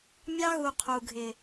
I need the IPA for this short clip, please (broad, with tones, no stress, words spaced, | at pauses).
mʲɑ˦ɣu˨ qʰu˨ɡʱɪ˨